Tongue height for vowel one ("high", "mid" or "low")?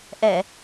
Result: mid